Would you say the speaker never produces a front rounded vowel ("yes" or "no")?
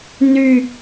no